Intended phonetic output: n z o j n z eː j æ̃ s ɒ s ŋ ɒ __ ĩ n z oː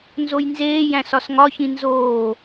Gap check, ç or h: ç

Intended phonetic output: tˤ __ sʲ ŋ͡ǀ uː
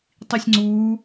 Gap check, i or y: i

